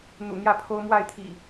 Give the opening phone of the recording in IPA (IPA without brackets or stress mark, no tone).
n̪